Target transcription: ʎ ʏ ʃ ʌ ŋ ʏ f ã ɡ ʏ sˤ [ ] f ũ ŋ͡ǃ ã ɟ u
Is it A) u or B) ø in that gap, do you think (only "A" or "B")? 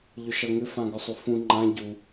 B